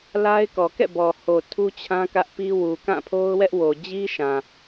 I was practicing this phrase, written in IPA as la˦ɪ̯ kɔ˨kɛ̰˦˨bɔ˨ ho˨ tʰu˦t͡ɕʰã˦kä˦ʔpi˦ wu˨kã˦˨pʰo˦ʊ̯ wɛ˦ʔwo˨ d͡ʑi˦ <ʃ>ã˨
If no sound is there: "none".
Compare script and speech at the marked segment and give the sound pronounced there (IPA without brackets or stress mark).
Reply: ʃ